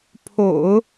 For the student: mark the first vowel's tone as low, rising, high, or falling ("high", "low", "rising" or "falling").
low